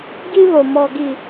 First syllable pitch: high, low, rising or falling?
high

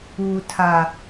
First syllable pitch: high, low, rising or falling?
low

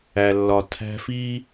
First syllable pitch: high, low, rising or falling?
low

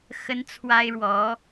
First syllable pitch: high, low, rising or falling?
high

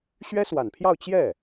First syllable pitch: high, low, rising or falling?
high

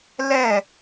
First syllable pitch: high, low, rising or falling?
falling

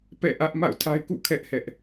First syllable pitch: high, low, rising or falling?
falling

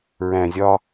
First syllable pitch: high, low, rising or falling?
low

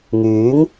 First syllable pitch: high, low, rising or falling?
rising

